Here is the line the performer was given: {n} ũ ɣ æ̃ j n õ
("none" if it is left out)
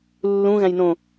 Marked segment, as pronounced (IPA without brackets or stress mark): lː